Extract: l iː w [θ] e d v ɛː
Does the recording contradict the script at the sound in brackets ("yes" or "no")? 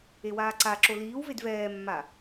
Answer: yes